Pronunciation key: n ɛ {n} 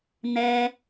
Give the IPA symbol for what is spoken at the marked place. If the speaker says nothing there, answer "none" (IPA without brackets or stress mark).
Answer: none